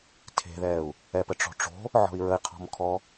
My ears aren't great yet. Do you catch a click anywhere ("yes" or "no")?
no